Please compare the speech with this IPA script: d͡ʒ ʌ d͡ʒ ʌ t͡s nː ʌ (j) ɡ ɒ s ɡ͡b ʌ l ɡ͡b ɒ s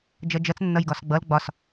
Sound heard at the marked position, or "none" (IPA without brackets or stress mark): j